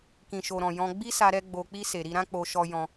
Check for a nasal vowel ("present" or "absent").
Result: present